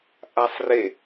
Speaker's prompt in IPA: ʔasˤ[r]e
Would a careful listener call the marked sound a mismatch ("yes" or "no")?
no